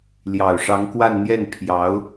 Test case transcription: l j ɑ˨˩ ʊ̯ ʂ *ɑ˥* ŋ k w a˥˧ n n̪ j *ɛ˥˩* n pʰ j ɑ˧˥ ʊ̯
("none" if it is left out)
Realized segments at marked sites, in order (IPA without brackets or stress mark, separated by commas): ɑ˧˥, ɛ˥˩